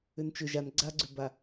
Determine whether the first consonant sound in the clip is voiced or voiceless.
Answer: voiced